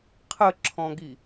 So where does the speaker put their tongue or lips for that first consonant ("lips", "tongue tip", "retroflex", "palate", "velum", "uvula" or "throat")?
uvula